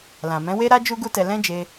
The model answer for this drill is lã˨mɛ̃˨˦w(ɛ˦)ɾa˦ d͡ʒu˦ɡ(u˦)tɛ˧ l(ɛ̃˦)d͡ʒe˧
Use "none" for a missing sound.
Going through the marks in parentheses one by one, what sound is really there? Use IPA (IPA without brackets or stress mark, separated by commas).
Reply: e˦, u˦, ɛ̃˦